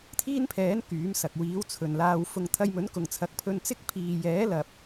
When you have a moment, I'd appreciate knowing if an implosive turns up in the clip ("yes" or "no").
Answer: no